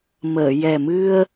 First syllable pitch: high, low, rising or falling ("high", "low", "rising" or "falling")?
low